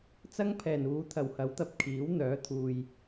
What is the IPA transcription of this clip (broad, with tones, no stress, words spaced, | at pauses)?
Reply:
t͡sɐ˥ŋpʰɛː˨˩nuː˨˧ t̪ʰɐ˨˩whɐ˨˥wt̪ɐ˧p̚ kʰiː˨˥w n̪œː˨˥t̪ʰuː˨j